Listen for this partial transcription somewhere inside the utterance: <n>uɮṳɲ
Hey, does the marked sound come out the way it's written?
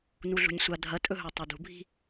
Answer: yes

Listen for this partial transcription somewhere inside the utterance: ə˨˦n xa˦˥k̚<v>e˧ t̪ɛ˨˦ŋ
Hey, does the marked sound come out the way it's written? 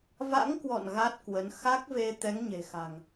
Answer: yes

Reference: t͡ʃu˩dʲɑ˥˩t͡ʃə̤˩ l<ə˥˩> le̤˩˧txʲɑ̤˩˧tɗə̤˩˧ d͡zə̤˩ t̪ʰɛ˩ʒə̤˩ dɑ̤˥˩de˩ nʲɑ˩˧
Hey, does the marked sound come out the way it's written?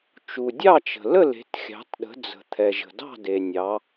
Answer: yes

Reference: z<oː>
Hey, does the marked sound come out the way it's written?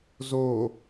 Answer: yes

